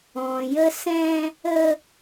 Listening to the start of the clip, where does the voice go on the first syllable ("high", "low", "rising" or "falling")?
low